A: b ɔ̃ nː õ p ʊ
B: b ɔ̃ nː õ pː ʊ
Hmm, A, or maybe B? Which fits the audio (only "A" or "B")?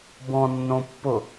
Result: B